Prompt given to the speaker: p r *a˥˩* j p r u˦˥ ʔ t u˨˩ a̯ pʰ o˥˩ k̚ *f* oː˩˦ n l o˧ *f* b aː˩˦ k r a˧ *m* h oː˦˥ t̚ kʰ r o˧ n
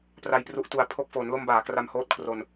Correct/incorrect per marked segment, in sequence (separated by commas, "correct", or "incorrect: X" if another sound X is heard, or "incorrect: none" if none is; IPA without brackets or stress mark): incorrect: a˧, correct, incorrect: m, correct